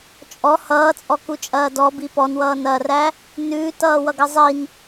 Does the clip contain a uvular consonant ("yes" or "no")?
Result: no